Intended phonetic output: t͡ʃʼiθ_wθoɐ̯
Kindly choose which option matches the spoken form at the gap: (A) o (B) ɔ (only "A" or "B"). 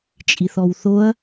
B